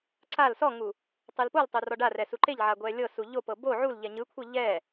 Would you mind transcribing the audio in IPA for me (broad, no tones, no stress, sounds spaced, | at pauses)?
ǀ a l s ɔ ŋ u | tˤ ɯ l p o l tˤ o r ɔ ɖ a r ɛ s u ǃ e ʎ ʕ a ɡʷ ɛ lʲ ɤ s u ʎ o p ɤ b o ʕ u l ʎ ɛ ɲ ɯ kʷʰ ɤ ʎ ɛ